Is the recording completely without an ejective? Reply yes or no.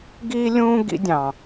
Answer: yes